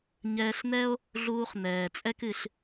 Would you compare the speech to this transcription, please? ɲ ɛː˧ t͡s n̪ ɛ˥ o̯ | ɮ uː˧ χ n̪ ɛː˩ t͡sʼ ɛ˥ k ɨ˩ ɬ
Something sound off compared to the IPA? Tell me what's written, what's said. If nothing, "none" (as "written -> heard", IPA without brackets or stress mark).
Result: t͡s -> ɬ